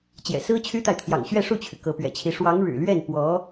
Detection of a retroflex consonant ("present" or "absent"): present